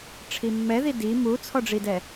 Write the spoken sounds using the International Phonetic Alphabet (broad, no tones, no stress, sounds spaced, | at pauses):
ʈ͡ʂʰ i mː ɛ ð i d i m u t͡sʰ ɔ ɖ͡ʐ i d ɛ